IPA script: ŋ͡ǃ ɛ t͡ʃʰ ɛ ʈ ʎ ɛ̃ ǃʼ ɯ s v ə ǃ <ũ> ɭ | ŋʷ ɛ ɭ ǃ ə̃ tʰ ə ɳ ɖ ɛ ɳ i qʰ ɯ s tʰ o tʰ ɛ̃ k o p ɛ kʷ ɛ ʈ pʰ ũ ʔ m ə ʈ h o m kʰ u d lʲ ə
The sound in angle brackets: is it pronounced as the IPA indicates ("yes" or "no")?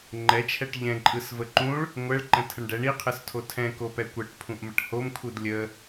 yes